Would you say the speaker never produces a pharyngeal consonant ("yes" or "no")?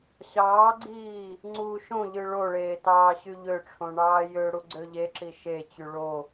yes